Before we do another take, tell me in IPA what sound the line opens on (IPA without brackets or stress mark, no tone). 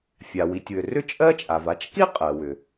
fʲ